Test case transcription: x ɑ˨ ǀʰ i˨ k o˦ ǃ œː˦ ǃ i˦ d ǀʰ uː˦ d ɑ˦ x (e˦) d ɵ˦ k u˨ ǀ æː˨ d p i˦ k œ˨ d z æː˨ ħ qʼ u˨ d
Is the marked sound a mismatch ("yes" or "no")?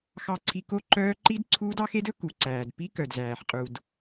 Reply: no